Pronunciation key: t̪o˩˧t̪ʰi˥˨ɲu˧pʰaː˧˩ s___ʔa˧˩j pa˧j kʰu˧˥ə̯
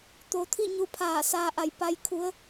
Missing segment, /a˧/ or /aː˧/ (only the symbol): aː˧